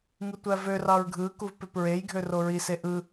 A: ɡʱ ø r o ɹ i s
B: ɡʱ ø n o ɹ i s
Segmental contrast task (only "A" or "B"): A